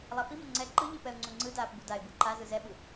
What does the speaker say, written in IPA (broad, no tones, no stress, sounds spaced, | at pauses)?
lˠ a f i m ɛ ŋ͡ǀ ɛ ǃ ɯ ʎ i p ɛ ʊ̯ ŋ͡ǀ u ŋ͡ǀ ɯ d aː p b u d a ɪ̯ b ɯ ǃ a z ɯ z ɛ ɓ ɯ